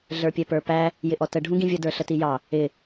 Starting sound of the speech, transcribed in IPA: ɮ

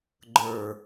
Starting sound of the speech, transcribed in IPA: ɡ͡ǃ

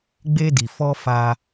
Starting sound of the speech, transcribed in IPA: ɡ͡b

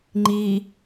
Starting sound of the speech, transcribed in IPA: ŋ͡ǃ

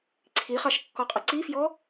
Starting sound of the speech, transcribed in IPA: ǀʰ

